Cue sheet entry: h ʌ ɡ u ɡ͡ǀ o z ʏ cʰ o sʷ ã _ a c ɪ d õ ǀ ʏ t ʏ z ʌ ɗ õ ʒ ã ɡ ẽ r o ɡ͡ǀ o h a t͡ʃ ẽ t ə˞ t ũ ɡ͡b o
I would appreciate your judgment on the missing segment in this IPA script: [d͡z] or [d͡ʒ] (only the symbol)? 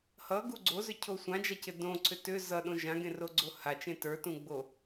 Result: d͡ʒ